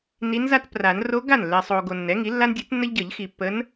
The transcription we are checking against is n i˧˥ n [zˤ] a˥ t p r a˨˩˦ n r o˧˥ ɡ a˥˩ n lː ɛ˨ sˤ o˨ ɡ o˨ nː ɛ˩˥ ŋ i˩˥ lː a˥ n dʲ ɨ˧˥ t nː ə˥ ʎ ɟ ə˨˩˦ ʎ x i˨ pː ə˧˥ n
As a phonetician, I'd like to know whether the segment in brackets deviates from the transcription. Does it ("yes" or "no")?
yes